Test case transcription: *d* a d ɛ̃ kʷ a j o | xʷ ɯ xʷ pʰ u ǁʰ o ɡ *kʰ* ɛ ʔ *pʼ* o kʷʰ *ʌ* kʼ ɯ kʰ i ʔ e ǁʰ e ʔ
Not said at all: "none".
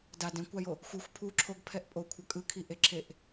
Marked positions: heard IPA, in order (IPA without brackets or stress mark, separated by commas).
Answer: d, pʰ, pʼ, ʌ